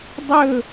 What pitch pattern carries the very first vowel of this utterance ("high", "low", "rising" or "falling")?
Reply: falling